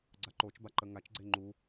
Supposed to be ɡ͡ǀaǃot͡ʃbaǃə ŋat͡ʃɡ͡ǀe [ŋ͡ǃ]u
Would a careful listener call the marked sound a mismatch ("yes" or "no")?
no